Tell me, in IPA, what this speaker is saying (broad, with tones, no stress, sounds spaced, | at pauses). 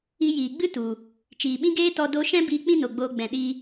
i˧ j iː˨ ɡ͡b ɨ˦ t u˨ | t͡ʃ iː˨ ɓ ĩ˦ ɡ eː˦ t ɔ˧ d o˧ ʃ ɛ̃˦ b iː˧ k͡p ĩ˦ n o˨ ɡ͡b oː˧ ɡ͡b ɛ̃˨ ɗ i˧